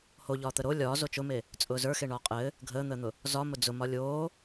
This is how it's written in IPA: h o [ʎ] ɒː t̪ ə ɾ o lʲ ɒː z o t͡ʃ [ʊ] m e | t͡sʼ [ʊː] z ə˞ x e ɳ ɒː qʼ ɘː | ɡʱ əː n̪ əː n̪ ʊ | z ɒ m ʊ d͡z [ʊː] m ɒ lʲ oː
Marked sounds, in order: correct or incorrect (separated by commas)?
correct, correct, correct, incorrect